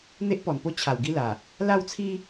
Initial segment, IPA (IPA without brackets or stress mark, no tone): n̪